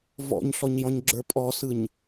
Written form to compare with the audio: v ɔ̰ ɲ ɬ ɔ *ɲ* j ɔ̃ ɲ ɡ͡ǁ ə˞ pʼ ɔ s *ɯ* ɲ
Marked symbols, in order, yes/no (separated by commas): yes, yes